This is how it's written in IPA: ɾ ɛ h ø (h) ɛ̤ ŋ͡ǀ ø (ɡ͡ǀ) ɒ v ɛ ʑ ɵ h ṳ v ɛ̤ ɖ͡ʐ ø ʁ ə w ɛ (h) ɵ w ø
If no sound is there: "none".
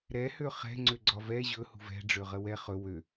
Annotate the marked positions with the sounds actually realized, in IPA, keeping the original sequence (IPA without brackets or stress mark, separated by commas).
χ, ɡ͡ǀ, χ